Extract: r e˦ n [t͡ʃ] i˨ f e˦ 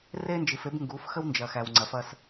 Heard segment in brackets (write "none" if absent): d͡ʒ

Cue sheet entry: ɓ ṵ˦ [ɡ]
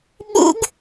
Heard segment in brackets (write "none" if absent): ɡ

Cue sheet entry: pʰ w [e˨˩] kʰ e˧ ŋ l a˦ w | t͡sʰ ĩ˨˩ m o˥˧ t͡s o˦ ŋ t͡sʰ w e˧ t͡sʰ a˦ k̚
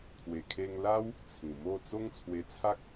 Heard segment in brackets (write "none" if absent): e˨˩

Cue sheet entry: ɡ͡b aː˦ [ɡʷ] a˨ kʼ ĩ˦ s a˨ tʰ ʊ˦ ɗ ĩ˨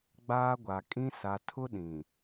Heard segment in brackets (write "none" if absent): ɡʷ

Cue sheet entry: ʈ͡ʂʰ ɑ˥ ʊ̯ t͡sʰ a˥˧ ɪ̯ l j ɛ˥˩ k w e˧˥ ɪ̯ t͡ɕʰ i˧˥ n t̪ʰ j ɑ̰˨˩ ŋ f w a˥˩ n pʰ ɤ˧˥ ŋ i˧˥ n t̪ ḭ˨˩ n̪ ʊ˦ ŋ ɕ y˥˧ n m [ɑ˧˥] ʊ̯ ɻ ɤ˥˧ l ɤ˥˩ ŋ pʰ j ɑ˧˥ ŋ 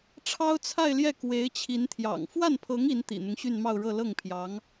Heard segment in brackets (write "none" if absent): ɑ˥˧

